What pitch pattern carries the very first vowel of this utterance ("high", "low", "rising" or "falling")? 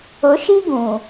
rising